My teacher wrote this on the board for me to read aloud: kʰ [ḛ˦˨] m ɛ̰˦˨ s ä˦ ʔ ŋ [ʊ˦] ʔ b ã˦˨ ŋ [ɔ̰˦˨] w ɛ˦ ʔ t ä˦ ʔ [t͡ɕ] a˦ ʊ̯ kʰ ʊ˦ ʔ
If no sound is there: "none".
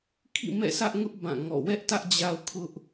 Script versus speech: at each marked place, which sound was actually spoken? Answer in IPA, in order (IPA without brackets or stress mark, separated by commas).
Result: ḭ˦˨, ʊ˦, ɔ̰˦˨, d͡ʑ